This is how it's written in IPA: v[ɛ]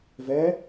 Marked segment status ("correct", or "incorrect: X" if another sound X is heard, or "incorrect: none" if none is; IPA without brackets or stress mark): correct